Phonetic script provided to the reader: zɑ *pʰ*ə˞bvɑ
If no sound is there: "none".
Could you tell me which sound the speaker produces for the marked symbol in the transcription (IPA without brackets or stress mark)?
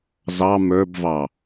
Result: m